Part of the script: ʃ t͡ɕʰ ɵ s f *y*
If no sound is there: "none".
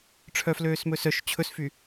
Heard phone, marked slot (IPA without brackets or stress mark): y